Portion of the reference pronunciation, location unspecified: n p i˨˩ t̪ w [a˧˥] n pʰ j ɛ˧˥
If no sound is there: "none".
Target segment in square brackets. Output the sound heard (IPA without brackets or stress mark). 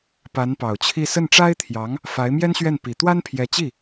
a˥